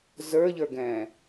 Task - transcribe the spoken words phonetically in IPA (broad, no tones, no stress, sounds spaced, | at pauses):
z ə˞ ʎ ə˞ ɡ ɛ̃ː